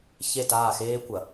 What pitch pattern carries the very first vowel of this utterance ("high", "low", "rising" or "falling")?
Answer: falling